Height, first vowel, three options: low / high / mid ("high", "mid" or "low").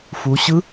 high